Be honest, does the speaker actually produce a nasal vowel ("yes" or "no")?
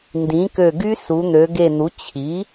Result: yes